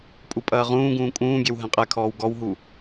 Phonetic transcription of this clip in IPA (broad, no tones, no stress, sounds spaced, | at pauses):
pʼ u pʼ ɐː ʁ ũː ɡ ũː kʼ ũː ɡʲ ɛ w ɦ ɛ̃ qʼ ɛ kʰ ɔː w ɡ ɔ w ɦ u